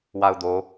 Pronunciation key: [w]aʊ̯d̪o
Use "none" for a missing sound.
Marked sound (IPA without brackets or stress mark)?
w